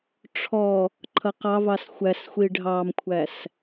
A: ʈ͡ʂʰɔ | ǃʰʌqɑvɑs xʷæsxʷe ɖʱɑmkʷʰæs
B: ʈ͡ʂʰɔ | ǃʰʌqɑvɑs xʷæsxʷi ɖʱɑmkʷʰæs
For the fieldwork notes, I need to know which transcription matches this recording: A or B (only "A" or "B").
B